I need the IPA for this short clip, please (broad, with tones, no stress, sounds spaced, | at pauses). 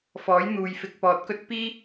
f ɔː˨˥ j n̪ uː˨ j f ɪ˨˥ k̚ p ɔː˨˥ t̚ k ɵ˥ t̚ p iː˥